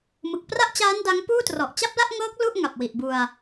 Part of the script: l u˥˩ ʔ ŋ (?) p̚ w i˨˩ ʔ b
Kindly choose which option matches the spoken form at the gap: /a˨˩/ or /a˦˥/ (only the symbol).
a˨˩